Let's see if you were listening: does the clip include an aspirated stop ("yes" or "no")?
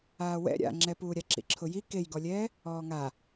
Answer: yes